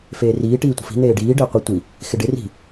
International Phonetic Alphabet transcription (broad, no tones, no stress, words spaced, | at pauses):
feːriː ʈiːtʷə̤fi̤ n̪eːɖiː ɖɪːqʷɪ tʷi | xɪɖɪ ri̤